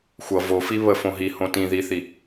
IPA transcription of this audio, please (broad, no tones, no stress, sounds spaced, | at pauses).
xʷ ʌ v o f i β ə f õ ɦ i h õ t ĩ ð i θ i